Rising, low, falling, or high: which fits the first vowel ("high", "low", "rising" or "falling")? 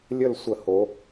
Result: falling